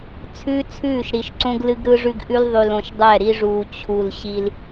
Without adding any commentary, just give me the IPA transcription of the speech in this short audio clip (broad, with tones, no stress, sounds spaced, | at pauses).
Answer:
t͡sʰ ʉː˦ t͡sʰ ʉː˦˨ ʃ ɾ i˨ ʃ ǀ õ˦ ɡ l ɨ˦ ɡ ɾ ɯ˦ ʐ ʉ˦ ɡ ʔ ʉ˦ l ðˤ ʉ˨ l õ˨ ʃ dˤ ɛ˦˨ ɾ i˦ ʐ uː˨ t͡ɕʰ u˨ l ɕ i˦ l